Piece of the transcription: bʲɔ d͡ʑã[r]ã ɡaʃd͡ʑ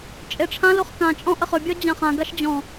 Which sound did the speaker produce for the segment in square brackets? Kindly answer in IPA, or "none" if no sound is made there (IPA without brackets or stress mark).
χ